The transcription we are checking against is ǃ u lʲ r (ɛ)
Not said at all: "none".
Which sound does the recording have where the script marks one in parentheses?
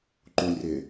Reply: ɪ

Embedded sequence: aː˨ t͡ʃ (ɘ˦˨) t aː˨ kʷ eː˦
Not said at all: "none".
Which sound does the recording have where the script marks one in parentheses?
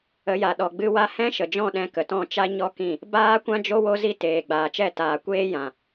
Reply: ɛ˦˨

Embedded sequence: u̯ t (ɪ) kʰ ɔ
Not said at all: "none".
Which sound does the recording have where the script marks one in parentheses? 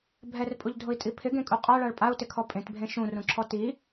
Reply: ɪ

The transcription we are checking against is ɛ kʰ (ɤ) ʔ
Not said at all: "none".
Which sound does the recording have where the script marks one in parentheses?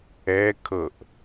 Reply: ɤ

